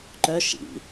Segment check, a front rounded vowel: present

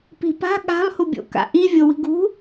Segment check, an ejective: absent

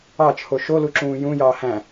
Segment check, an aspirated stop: present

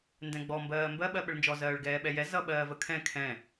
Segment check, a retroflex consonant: present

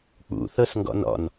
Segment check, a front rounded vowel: absent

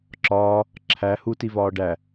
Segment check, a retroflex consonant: present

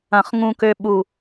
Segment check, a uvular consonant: present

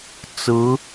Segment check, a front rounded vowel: absent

